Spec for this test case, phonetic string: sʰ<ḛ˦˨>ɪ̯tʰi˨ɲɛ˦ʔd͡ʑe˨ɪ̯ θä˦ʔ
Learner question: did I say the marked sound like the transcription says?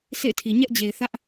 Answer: yes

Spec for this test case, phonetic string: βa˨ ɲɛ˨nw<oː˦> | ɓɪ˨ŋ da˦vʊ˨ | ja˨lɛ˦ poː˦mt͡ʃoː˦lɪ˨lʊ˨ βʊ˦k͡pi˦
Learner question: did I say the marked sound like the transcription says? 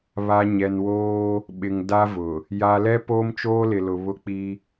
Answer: yes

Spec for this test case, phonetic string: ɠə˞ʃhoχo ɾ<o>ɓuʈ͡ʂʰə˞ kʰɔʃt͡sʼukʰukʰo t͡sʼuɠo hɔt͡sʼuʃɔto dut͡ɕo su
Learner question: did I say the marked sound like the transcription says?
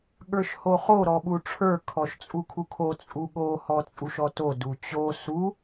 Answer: no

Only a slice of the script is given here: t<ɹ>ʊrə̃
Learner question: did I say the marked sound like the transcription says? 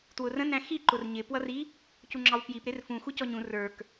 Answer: no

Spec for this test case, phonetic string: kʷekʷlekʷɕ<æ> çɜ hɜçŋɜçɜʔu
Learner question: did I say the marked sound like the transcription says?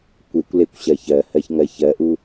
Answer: no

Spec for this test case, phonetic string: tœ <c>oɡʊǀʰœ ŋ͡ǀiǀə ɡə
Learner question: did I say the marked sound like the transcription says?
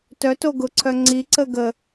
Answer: no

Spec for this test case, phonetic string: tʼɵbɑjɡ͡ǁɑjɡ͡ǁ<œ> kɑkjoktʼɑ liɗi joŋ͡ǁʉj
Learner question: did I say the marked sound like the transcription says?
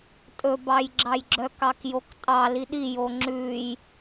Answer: yes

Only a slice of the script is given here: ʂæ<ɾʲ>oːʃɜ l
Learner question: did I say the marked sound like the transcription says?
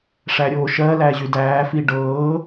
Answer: yes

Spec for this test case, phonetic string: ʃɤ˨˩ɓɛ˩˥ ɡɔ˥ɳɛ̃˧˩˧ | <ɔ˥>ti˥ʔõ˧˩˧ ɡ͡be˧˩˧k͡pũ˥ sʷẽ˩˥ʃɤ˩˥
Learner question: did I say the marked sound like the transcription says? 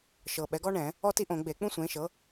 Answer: yes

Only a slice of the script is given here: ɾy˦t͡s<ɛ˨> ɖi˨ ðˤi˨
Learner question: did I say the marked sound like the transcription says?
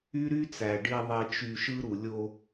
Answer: no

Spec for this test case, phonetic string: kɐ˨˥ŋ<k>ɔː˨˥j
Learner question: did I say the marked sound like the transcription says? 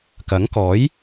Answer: yes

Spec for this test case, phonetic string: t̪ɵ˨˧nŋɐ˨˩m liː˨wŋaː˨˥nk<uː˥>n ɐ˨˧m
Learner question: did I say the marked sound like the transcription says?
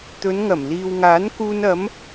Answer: no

